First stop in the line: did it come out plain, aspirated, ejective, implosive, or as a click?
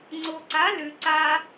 click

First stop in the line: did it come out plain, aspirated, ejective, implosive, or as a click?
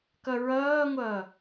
plain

